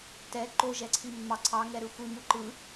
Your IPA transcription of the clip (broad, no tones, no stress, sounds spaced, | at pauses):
t ɛ ǃ o ʒ ɛ ǀʰ i mː ɑ ǀʰ ɑ ŋ ɛ ɾ ɯ xʷ i m u ǃ ɯ